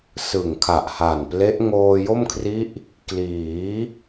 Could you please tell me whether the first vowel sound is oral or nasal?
oral